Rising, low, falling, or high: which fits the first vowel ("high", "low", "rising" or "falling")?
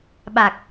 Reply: low